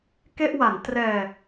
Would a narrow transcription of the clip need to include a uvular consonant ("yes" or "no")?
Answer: no